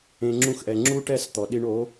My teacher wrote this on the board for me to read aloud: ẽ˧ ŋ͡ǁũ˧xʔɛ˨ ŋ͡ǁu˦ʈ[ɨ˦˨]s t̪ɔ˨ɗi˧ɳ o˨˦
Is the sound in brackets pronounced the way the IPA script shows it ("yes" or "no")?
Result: no